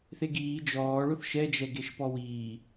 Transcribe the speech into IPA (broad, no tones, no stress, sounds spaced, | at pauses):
θ e ɡ iː d͡ʒ ɔː ɭ ʊ θ ʃ ɛ d͡ʒ ɛ ɡ e ʃ p ɔ w iː